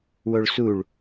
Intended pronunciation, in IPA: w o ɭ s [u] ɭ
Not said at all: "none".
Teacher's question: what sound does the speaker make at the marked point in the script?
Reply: u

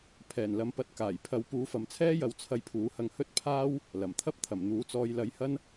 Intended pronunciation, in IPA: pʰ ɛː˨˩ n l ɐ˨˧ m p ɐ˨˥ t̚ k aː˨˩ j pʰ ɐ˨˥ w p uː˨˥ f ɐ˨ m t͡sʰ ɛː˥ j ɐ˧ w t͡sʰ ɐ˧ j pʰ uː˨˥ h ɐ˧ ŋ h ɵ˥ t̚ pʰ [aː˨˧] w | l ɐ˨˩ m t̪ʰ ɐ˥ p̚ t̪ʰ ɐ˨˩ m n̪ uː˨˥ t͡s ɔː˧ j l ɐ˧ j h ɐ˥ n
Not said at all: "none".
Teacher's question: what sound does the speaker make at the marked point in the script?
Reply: aː˥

